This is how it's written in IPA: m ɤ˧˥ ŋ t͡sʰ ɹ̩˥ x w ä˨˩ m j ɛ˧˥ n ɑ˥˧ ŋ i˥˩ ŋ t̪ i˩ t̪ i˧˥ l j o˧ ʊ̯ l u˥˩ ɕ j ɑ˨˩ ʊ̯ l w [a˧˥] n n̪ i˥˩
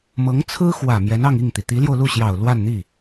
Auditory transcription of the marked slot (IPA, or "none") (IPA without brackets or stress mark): a˥˧